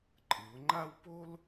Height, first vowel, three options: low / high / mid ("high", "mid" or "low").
high